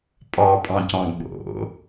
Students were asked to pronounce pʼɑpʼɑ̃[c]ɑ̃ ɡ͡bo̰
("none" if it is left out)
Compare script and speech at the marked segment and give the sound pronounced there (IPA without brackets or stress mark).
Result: c